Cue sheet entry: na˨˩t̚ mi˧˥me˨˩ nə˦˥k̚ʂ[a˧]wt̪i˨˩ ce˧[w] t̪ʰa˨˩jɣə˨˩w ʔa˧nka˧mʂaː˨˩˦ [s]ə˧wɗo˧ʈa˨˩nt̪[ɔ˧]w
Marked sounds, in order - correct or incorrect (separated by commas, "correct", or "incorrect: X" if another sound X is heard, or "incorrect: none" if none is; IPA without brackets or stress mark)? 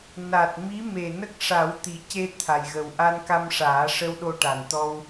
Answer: incorrect: a˨˩˦, incorrect: none, incorrect: ʂ, correct